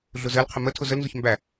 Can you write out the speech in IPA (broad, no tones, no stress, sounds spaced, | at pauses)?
ɮ ʊ z ɜ l qʰ ə m ə tʰ ʊ z ə l n z ʊ ç m b æ